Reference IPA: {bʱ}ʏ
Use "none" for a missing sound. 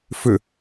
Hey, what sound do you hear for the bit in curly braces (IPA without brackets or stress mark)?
f